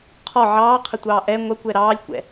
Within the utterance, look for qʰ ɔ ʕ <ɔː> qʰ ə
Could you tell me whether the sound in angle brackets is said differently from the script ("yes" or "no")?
yes